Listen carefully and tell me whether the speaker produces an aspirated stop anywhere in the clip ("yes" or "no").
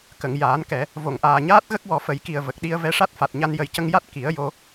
no